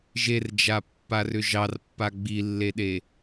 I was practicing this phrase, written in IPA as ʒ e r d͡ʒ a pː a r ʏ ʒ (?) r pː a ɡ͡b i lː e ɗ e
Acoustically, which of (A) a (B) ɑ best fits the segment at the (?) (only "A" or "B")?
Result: B